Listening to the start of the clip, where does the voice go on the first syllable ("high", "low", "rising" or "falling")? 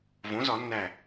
rising